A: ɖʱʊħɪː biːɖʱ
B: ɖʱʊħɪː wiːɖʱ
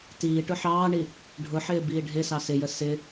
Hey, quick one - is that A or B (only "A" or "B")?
A